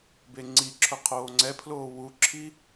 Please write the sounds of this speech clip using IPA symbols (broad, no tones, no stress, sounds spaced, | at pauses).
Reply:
b e ŋ͡ǀ i ǁʰ ʊ qʰ oː ŋ͡ǀ ɛ pʰ l oː w u ǁʰ i